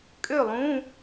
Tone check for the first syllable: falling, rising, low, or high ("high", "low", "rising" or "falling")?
falling